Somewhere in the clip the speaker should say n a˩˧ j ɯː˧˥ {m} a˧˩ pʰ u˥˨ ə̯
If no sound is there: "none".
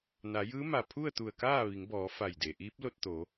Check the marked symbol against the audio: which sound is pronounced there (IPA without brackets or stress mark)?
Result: m